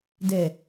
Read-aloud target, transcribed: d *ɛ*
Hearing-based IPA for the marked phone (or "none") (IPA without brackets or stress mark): ɛ